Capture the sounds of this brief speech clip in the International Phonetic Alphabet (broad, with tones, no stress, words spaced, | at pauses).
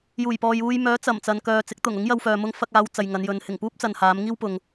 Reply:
juː˨˩jpɔː˨juː˧j mœː˨˥ t͡sɐ˨˩mt͡sɐ˨nkœː˨ t͡sɪ˨˥k̚t̪ʊ˨˩ŋ ʊ˨˥ŋjɐ˧wfœː˨ mʊ˧ŋfɐ˧k̚aː˨˧w t͡sɐ˨jŋɐ˨˧njɵ˨˧n hɪ˨˩ŋpuː˥p̚t͡sɐ˨nhaː˨˧m ŋiː˥wpʊ˨ŋ